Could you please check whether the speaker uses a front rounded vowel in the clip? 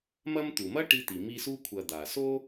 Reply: no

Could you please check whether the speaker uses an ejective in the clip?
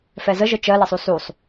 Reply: no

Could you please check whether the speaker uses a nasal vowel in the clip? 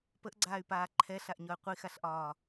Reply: no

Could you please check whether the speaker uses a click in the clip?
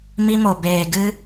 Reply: no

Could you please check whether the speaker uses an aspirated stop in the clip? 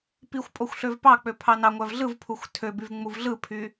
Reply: yes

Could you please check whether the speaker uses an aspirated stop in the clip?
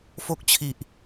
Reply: yes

